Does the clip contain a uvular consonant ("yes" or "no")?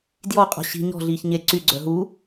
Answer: yes